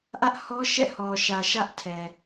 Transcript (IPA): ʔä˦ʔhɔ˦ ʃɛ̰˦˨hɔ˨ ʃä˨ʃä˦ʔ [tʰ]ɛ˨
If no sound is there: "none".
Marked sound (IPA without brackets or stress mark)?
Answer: tʰ